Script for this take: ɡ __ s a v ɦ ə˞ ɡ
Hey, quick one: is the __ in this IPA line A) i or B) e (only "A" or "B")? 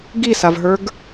A